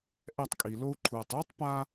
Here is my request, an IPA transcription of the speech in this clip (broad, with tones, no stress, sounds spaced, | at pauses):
ʔ ɛ˦˨ tˤ kʼ i˨ l o˦ u̯ ǃʰ uː˨ tˤ uː˦ tˤ p a˦